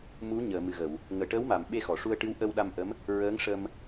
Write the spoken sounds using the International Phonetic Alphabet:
m u˧˥ ɲ əː˨˩˨ m ɨ˨˩ ɣ ə˨˩˨ w | ŋ əː˨˩˨ ʈ əː˧˥ w m a˨˩˨ m ɓ e˧ x ɔ˨˩˨ ʂ u˧ ə̯ ʈ ɨ˧˥ w ʔ ə˧ w ɗ a˧ m ʔ ə˧˥ m | ɹ əː˧˥ ŋ ʂ ə˧ m

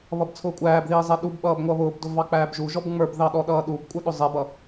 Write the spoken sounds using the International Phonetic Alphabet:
β ʌ b t͡sʰ ʊː kʷʼ æː b ð iː zˤ ɛ ɗ u b ɓ ʌː b ŋʷ ʌ β ʊː b d ʊ v ɑ k͡p æː b ʒ u ʒ ɔ b ŋ͡m ə˞ b ð ɑ ɗ ɔ ɗ ʌː ɗ u b kʷʼ ə˞ ɗ ʊ zˤ ɛ b ʌ

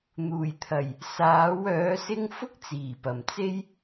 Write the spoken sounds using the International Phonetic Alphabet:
n̪ uː˨˩ j t̪ʰ ɐ˨˩ j | s aː˨˥ w œː˨˥ s ɪ˥ ŋ f ʊ˥ k̚ t͡s iː˨˩ p ɐ˨˩ m t͡s e˥ j

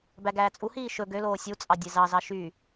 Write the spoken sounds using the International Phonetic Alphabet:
b æ ɡ æː t͡sʼ u h iː ʃ ɵ ɡ ø l oː sʲ u t͡sʼ ɑ dʲ e z ɑ z ɑ ʃ y

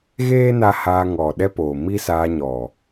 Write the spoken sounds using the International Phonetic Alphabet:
ɣ eː˦ n a˧ h aː˧ ŋ ɔ˨ ɗ ɛ˦ p oː˨ m i˦ s aː˧ ɲ ɔ˨

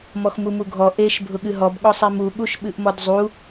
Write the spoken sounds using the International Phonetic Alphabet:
m ɔ x m u m u ɡʱ ɔ ʔ e ʃ bʱ ʊ ɠ ɨ ɦ ɔ b ɠ ɔ sˤ i m u ɠ u ʃ ɓ ɨ ʔ m ɔ d zˤ u

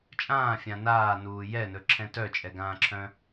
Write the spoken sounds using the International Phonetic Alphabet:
t͡ʃʼ ãː fʲ ã n aː n uː j ɛ n ɵ ǁʰ ɛ̃ t œ t͡ʃʼ ɛ ɡ ãː ǁʰ œ̃

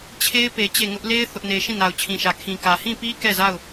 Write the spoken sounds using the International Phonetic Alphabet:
t͡ɕʰ e˦ ɪ̯ p e˨ t͡ɕ e˦˨ ŋ ʊ˦ ʔ l e˦ ɪ̯ θ ʊ˦ ʔ n e˦ ʃ ĩ˦˨ n a˨ ʊ̯ t͡ɕʰ ĩ˨ ʃ ä˨ kʰ ĩ˨ k ä˨ h ĩ˦˨ p i˦ k ɛ˦˨ z a˦˨ ʊ̯

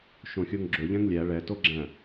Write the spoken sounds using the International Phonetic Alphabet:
ʃ õ xʲ o ŋ ɡ͡ǁ ɵ ʎ ɛ̃ ŋ lʲ æ ɭ ɛ t o ɡ͡ǁ æ̃

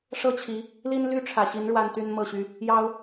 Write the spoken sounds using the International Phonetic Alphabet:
ʂ ɤ˥˨ t͡ɕʰ i˨˦ | l i˦ n l y˦ ʈ͡ʂʰ ä˨˩ ɕ i˨˦ n ɻ w a˦ n t̪ y˦ n m ɤ˥˨ ɕ y˦ | j ɑ˦ ʊ̯

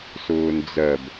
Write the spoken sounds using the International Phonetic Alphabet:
s ʊː n d͡z ɜ b

